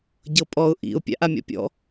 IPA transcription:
ɟɤpʼɔʊ̯ ʔḭʊ̯ pʲa̰ʔamʲɔ̰pʲɔ̰

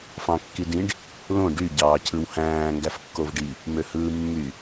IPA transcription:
fɑ̃kːidĩɖ | lõ ɖy ɟɑːcʰɯwhæ̃ː ŋɡæfkːovɖi | møhɯːmːy

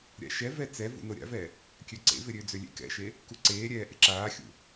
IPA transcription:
ɾʲa̰ʃɛ vɛt͡sɛ vṵnoɾʲa̰vɛ | kʲøǀḛvɪɾʲø d͡zølʲḛkɛ̰ʃe | kuǀeːɾʲɛː ʔɪǁaːxʲṵ

